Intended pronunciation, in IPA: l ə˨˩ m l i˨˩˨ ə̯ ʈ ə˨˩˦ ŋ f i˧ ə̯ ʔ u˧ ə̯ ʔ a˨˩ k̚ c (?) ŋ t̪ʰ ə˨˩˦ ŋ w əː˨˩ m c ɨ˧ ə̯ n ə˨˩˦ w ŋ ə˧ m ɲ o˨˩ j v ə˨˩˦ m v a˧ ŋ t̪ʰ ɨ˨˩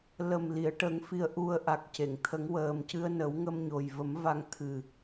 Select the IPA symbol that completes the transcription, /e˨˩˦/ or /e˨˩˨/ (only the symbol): e˨˩˨